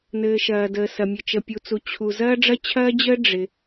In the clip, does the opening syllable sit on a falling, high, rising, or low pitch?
low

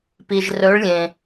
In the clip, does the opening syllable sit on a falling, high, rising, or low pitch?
low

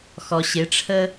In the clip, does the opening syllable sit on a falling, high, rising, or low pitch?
low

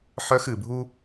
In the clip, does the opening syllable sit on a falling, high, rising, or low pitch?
high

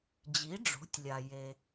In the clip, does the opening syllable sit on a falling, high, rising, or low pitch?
rising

